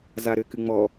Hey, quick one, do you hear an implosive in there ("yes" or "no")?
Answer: no